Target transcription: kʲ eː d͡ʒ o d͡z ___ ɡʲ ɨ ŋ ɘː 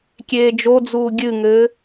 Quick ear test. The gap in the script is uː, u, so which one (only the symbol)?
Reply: uː